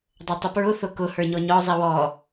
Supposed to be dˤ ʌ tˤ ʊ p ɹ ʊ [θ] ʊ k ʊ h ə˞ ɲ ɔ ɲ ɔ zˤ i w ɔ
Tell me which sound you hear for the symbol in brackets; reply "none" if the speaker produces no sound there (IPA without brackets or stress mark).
θ